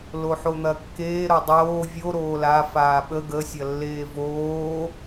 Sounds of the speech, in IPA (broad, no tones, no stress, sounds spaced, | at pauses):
l o ħ o n̪ ɐ kː eː ɾ o dˤ oː vʲ o ɾ oː l a f aː ɓ ə ɡ ə sʲ ɐ lː eː v oː